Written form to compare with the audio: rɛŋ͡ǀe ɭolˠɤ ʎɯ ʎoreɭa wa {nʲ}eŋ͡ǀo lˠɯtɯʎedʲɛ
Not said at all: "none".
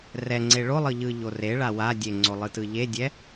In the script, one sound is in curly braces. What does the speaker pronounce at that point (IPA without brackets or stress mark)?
dʲ